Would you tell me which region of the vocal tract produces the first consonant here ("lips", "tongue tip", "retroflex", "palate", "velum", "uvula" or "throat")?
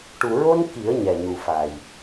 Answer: retroflex